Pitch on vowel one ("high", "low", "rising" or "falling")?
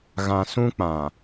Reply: low